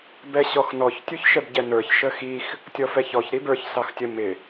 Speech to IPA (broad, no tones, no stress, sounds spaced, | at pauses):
b ɛ ɕ ɔ x n ɔ ç tʲ u ç ʃ ɛ b ɟ ɛ n ə˞ ç ʃ ə x i x | tʲ ɔ f ɛ ç ɔ ç ɾ i b ə˞ ç s ɑ x tʲ ə m ɪ